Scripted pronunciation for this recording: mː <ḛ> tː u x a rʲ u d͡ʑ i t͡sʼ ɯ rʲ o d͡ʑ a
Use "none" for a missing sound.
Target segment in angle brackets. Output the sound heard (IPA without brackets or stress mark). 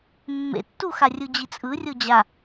ḛ